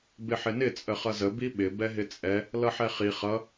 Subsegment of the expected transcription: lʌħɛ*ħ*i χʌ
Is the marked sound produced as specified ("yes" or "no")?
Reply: no